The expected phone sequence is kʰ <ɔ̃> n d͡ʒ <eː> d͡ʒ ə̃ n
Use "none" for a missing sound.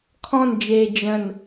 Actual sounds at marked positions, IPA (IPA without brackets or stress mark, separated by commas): ɔ̃, eː